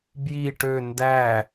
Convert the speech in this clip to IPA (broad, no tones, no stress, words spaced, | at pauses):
bji ʈø ndæ